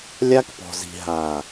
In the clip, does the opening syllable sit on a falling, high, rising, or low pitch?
high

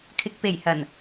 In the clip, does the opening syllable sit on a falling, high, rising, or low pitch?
low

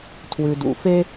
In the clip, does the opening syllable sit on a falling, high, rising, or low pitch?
low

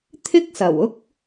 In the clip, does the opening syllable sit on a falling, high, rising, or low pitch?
high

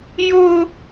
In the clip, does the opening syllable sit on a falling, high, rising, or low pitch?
high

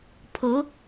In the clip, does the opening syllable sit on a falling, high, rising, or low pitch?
rising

